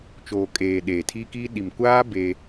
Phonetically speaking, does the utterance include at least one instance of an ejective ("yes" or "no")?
yes